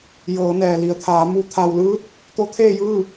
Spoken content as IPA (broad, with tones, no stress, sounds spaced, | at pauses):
j ɤː˩˧ n ɛː˩ l i˩ ə̯ t̪ʰ aː˩˧ m u˩˧ t̪ʰ a˩ w l ɯː˧˥ t̚ | t̪ o˧˥ t̪ʰ eː˥˨ j ɯː˥˨